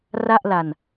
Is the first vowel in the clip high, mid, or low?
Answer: low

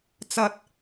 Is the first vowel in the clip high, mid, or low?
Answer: low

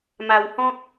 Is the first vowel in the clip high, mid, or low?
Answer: low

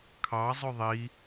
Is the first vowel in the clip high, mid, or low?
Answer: low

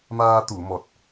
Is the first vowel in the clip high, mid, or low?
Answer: low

